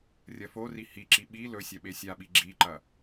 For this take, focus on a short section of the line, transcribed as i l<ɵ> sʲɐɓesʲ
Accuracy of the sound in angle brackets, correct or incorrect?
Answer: correct